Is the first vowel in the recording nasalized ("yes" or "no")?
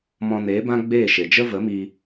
yes